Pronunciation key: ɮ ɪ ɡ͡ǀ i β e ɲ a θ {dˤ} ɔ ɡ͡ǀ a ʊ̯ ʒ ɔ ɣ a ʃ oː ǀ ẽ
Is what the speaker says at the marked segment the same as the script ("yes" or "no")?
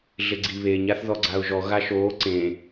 no